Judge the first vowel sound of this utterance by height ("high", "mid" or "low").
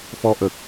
mid